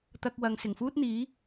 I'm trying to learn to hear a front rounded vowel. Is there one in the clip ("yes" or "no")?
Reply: no